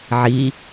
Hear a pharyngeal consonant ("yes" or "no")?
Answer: yes